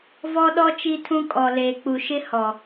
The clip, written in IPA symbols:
v ɔ˦ ɗ ɔ˦ t͡ʃ i˦ tʰ ũ˦ kʼ ɔ˨ l eː˨ k͡p u˨ ʃ ɪ˦ h ɔ˨

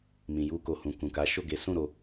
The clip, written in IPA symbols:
m ĩ˨ j u˧ k o˨ h ũ˨ k ũ˨ k a˨˦ ʃ o˦˨ ɡ e˨˦ s ũ˦˨ ɾ o˧

